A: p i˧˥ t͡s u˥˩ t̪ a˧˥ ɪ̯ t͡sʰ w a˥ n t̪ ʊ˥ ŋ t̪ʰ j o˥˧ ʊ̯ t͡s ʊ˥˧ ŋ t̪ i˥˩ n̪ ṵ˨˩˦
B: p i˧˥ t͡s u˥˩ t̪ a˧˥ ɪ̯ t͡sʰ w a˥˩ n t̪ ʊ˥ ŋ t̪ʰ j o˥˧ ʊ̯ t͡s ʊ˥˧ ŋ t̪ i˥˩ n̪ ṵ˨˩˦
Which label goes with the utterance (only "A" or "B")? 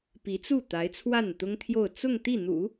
B